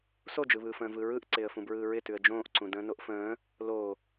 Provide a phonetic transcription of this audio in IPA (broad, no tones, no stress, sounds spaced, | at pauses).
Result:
s o d͡ʒ ɯ β ɯː f ə̃ː v ɯ ɹ ɯ ʔ ǀ ɪː ə̯ f ũ b ɹ ɯː ɹ ɪ t ʉ ə̯ d͡ʒ õː ʔ ǀ ũ d ə̃ː n o ʔ f ə̃ː | l o